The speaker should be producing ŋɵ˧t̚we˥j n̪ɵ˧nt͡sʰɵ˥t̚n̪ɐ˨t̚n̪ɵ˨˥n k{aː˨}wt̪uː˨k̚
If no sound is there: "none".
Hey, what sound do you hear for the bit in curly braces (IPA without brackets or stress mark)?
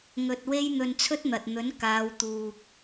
aː˨˧